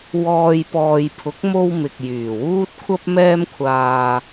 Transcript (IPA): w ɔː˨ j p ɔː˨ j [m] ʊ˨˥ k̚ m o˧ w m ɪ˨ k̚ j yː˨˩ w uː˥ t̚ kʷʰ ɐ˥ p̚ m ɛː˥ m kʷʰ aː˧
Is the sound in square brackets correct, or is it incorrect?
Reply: incorrect